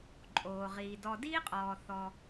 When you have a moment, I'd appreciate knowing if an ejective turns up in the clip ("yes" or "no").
yes